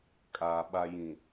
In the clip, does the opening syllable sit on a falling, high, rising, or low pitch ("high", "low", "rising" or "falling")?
low